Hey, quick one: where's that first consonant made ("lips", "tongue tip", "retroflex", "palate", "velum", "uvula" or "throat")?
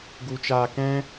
velum